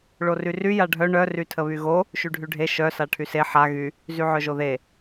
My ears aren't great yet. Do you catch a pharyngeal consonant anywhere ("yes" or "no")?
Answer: yes